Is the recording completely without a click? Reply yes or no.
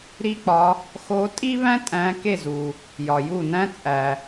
yes